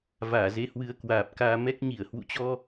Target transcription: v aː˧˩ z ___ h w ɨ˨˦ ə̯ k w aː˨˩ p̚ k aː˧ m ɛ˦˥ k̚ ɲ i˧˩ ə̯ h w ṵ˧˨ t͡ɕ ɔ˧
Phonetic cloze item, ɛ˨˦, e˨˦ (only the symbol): e˨˦